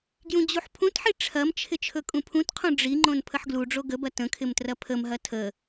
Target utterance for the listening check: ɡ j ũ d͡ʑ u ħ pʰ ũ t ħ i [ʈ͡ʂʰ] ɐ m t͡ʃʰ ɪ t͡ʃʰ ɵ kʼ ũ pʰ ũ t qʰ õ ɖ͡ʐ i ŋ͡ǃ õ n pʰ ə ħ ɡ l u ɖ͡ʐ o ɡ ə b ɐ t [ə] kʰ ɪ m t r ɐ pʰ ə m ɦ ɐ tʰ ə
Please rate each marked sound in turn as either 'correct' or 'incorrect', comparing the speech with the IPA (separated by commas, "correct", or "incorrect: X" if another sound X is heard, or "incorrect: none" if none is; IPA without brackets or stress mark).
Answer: correct, incorrect: ə̃